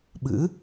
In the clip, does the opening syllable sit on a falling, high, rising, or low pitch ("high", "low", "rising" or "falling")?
rising